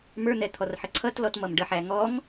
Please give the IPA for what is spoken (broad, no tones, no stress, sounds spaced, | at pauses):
m ə˞ n̪ ɛ t̪ʰ ɔ r ħ ə ǀʰ ʌ t l ɔ t m ʌ m ɖ ə ħ æ ŋ ɔ ŋ